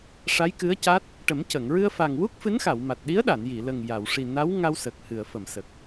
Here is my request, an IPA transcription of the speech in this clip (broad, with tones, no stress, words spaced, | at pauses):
ʂa˧˥jkɨ˧˥ə̯ca˦˥t̚ | ʈə˨˩˦mcə˨˩˨ŋ ɹɨ˧ə̯fa˨˩ŋwu˦˥k̚ fɨ˧˥nxa˨˩˨wma˨˩t̚ ɗi˧˥ə̯ɗa˨˩˨nji˨˩˨ lə˨˩ŋja˨˩˨w ʂi˨˩na˧˥wŋa˧w sə˨˩k̚hɨ˨˩˨ə̯fə˨˩˨msə˨˩k̚